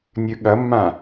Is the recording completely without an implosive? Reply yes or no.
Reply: no